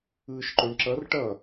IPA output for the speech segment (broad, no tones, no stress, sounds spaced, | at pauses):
ɯː ʃ ǃ o ɳ ǁ ʌ r ʈ ʌ